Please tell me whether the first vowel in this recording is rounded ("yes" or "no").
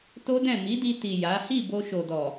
yes